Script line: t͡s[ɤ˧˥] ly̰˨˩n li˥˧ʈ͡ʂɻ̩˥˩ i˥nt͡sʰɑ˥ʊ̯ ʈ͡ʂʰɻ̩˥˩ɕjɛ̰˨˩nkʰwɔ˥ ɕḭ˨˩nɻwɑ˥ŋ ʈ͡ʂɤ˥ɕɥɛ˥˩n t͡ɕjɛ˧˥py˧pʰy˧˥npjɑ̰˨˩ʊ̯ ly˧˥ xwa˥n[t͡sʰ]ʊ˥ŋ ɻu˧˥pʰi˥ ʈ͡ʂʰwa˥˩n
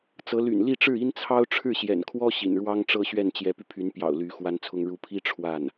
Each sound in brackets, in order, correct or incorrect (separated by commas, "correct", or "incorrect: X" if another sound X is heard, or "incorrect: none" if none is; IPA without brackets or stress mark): correct, correct